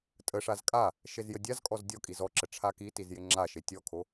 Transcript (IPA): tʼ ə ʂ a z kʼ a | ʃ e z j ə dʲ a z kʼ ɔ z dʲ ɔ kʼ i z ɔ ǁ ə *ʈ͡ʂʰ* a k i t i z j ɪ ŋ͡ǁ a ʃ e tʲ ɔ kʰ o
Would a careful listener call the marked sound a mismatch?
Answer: no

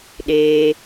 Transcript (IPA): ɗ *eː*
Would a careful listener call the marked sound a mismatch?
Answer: no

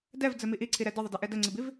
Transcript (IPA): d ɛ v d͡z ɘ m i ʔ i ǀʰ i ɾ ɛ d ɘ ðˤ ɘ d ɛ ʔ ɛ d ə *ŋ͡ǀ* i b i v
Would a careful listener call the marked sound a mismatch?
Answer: no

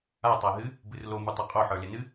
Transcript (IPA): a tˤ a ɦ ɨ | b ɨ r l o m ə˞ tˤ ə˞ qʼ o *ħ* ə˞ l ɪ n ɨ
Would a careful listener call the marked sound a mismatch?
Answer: no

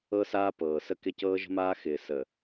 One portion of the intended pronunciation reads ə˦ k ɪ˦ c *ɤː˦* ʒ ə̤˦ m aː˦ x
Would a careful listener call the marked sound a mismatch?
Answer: no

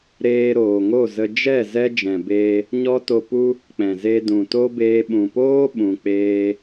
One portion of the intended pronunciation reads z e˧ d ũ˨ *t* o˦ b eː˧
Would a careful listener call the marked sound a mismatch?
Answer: no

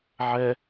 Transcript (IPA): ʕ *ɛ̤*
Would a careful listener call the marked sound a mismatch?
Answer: yes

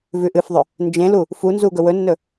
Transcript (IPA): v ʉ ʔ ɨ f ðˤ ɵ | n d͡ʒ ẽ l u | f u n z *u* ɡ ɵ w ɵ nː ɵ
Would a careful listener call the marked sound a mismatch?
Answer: no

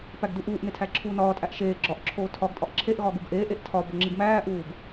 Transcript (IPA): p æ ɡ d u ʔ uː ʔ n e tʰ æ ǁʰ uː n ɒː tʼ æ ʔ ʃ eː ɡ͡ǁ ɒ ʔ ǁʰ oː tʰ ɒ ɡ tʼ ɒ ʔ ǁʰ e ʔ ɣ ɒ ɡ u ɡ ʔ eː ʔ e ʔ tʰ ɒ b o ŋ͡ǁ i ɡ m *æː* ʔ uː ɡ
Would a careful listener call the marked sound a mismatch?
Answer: no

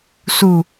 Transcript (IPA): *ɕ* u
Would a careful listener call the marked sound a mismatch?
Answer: yes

